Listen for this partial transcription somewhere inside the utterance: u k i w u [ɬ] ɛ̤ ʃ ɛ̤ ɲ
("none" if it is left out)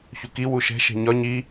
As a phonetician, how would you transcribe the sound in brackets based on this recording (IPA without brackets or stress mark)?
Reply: ʃ